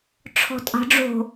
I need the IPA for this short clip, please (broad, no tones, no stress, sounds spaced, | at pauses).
ʈ͡ʂʰ ɔ̤ tʼ ɑ̤ ɖ͡ʐ o̤